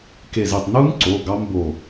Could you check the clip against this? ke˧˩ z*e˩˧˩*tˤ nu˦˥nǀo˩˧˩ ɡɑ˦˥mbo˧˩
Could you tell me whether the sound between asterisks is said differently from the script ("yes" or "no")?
yes